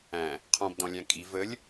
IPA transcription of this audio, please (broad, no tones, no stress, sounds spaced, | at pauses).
æ̃ | qʰ ɔ̃ b d ɔ̃ lʲ æ̃ kʼ i v ə lʲ